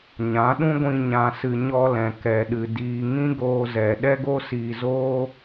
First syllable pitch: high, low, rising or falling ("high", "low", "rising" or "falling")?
rising